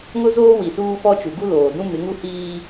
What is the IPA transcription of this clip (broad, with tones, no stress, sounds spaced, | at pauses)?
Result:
ŋ ʊ˦ z oː˦ w i˨ s uː˦ f ɔ˦ t͡ʃ u˨ ɡ u˦ l oː˨ d ũ˦ m ɪ˨˦ ŋ u˦ h iː˦